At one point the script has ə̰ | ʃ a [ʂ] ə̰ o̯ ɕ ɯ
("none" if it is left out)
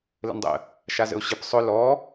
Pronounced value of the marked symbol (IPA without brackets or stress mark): z